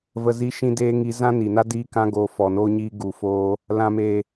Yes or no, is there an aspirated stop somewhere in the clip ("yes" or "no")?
no